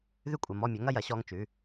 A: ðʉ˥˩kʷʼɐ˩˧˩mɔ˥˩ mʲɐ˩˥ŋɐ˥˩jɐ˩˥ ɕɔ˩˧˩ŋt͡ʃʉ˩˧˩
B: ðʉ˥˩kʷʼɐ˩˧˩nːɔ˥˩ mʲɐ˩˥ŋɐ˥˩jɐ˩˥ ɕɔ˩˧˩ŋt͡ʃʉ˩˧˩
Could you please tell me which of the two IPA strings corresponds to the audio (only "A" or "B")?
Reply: A